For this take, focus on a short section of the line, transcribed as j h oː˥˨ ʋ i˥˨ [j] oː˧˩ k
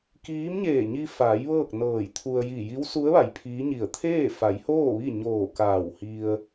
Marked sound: incorrect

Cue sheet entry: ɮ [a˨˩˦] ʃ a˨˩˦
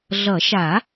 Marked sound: incorrect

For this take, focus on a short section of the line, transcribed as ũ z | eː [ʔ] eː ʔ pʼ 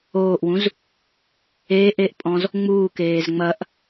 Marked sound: correct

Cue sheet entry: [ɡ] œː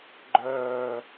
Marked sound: incorrect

